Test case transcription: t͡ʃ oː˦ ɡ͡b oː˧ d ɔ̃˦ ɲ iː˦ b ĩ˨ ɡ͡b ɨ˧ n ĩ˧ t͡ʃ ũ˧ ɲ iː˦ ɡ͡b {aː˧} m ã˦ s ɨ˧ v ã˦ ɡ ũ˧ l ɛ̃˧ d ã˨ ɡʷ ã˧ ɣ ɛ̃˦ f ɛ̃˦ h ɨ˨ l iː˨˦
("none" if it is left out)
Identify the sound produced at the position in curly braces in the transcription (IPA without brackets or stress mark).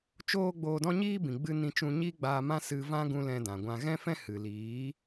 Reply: aː˧